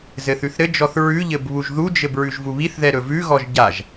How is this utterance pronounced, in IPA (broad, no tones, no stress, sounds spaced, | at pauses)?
z ɘ θ ʉ θ ɾ ɘ d͡ʒ ɔ θ ɹ ʉ ʎ ɘ b β u ʒ ð u d͡ʒ ɘ b ɹ ʉ ʒ v u β i θ ð ɛ ɾ ɵ v ʉ ɣ ɔ ʒ ɟ a ʒ